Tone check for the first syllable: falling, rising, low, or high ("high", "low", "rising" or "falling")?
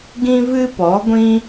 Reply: high